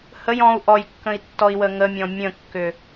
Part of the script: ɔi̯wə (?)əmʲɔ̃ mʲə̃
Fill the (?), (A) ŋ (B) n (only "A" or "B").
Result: A